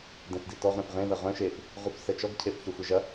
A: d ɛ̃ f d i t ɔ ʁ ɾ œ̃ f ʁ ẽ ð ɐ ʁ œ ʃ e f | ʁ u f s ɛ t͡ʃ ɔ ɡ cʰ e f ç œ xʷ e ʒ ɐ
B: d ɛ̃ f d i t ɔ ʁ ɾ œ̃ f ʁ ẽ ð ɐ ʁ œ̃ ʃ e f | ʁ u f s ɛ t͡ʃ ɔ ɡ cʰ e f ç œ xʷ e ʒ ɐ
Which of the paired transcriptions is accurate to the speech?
B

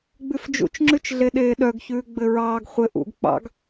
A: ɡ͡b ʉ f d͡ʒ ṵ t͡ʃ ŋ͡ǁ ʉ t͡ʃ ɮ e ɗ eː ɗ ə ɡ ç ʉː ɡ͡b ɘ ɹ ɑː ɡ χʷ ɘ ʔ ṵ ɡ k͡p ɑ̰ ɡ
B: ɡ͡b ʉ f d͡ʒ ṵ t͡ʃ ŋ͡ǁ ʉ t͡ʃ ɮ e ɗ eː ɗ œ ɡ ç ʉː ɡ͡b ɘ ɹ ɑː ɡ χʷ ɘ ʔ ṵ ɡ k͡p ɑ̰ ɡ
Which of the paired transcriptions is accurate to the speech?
B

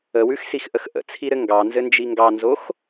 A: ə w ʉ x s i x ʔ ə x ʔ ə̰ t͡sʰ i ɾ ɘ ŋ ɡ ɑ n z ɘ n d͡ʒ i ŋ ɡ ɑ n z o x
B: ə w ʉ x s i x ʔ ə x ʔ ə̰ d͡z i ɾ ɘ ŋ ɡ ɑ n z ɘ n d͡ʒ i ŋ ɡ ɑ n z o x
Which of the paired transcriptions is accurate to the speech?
A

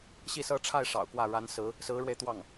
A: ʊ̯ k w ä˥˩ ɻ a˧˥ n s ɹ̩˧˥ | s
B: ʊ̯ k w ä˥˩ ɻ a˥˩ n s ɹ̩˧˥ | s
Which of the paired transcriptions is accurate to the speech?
A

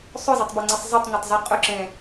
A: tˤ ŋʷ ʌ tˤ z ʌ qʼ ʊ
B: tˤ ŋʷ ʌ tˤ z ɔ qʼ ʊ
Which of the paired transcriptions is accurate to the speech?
A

